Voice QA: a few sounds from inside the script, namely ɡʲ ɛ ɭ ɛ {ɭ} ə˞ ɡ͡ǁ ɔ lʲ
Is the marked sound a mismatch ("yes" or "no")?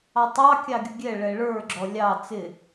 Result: no